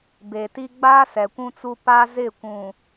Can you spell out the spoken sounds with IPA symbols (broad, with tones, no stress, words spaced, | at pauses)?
be˨ti˦ ɡ͡baː˦sɛ˨kʷũ˦t͡su˦ pa˦zɪ˦˨kʷũ˨